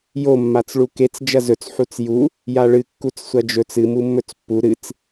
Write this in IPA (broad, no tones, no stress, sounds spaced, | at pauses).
j o mː a t͡s ɭ u k e t͡s d͡ʒ ɐ z ɵ t͡s ħ u t͡s j u | j a ɭ ɨ kː u t͡s sʷ ɐ d͡ʒ ɵ t͡s ɨ m u mː ɵ t͡s pː u ɾ ɨ t͡s